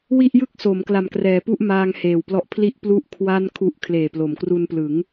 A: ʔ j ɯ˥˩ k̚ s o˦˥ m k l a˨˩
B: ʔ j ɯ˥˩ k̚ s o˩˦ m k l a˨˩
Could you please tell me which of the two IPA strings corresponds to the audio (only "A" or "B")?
B